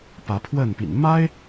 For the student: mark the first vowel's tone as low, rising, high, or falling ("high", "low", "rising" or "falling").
rising